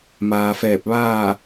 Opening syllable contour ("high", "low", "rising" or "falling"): low